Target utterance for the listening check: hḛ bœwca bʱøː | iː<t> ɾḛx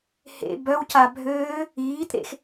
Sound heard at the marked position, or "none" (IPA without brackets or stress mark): t